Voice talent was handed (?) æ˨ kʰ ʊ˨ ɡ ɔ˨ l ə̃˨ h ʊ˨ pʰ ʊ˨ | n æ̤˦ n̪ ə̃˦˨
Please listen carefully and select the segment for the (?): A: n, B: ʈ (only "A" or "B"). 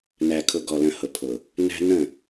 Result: A